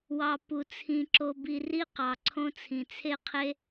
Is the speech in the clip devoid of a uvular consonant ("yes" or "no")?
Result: no